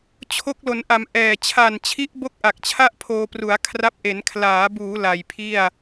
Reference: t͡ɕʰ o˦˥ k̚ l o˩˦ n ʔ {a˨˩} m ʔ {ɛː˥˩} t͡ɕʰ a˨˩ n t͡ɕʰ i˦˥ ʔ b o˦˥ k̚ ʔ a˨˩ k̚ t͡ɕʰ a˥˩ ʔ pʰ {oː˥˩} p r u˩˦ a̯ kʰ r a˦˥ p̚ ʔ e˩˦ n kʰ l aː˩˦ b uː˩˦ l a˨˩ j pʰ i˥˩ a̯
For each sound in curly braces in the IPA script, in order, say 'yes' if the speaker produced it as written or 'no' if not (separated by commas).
no, no, no